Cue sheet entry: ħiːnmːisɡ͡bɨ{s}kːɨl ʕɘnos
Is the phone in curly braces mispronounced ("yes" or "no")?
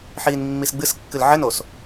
no